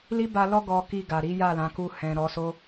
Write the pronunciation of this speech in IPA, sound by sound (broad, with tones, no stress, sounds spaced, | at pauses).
l i˦ b a˧ l ɔ˦ ɡ ɔ˧ k i˧ ɡ a˨ ɾ i˨˦ j a˦˨ l ã˨˦ k u˧ h ɛ̃˨ ɾ ɔ˨˦ s o˦